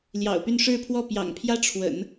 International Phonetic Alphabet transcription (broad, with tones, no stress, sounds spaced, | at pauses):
l j ɑ̰˨˩ ʊ̯ p y˥˧ n ʂ ɻ̩˥˧ pʰ w ɔ˥˩ p j ɑ̰˨˩ ŋ pʰ j ä˥ ʈ͡ʂʰ w ə̰˨˩˦ n